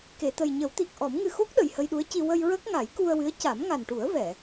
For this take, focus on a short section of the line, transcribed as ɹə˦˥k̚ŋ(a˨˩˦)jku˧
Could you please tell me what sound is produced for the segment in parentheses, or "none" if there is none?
a˨˩˦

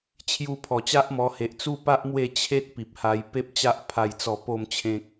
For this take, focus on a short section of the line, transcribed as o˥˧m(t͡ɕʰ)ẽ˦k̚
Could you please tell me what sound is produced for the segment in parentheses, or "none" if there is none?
t͡ɕʰ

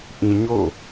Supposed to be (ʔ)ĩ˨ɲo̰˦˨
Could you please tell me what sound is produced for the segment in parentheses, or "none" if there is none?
ʔ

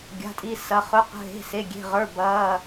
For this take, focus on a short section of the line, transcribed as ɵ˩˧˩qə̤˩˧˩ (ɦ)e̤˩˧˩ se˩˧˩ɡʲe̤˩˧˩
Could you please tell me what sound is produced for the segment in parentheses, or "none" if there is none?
ɦ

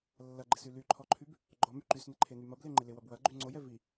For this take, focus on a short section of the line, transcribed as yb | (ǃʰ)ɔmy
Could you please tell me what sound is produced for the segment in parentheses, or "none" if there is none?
ɡ͡ǃ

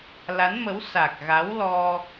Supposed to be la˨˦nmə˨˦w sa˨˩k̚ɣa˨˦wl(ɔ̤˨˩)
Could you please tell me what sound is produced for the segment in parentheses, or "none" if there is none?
ɔ˧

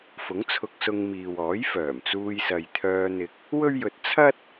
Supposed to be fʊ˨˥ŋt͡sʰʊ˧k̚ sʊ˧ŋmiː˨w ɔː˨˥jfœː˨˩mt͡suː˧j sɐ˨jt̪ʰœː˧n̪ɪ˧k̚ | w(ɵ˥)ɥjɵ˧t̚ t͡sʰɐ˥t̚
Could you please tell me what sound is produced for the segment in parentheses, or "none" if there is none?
ɵ˥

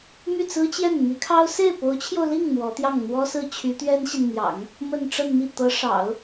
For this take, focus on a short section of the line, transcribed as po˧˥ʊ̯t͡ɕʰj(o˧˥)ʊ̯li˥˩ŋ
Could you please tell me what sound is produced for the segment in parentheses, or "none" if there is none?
o˧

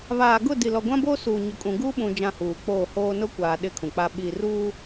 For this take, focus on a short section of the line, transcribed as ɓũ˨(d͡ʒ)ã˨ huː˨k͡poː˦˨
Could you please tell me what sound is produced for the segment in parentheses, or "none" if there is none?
d͡ʒ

